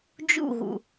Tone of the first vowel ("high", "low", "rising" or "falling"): falling